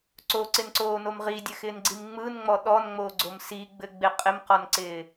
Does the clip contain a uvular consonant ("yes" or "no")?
yes